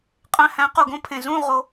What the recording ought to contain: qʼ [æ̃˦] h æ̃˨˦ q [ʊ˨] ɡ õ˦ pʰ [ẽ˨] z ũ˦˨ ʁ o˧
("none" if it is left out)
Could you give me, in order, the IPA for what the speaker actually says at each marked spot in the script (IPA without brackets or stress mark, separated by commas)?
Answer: æ̃˧, u˨, ẽ˨